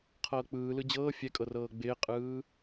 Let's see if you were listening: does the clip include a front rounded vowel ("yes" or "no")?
no